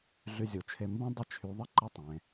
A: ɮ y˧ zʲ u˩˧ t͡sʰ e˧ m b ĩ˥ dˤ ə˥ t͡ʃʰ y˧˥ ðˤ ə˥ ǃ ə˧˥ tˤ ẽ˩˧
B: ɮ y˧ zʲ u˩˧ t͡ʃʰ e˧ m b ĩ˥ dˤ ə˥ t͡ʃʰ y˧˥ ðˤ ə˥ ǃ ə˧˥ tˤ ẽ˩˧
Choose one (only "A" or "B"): B